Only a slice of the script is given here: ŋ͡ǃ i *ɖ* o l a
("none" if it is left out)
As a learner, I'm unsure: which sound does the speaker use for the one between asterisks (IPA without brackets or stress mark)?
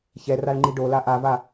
ɖ